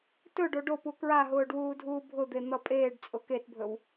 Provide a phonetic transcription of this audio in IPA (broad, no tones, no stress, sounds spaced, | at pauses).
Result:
t ɵ ɖ o ɖ o p u k ɹ a ɦ ʊː ɖ w uː dʱ uː bʱ ʊ d̪ e n̪ ʌ pʼ eː ɖ t͡sʼ ʊ k e t bʱ ɵ w